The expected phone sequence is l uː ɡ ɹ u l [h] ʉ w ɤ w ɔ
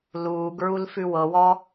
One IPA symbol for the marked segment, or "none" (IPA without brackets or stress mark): f